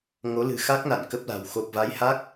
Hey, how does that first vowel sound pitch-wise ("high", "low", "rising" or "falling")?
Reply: rising